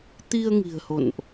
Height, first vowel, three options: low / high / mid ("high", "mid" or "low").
high